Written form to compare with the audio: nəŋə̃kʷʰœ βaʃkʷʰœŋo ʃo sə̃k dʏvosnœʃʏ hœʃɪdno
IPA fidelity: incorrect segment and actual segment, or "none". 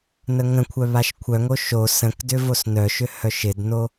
none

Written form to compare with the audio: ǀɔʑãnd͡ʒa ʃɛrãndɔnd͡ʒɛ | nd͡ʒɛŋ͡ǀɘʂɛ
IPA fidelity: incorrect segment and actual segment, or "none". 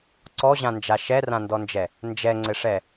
none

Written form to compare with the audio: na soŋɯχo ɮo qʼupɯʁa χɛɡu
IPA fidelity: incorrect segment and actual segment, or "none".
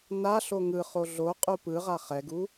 s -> ɬ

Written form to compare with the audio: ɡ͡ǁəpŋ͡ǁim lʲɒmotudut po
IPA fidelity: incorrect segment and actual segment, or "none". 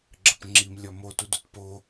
none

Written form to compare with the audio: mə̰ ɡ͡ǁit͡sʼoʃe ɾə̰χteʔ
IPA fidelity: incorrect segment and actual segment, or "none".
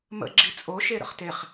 ʔ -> χ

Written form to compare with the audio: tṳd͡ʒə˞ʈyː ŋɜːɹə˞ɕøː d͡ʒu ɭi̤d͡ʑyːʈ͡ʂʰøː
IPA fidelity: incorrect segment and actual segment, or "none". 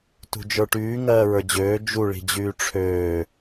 ɕ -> d͡ʑ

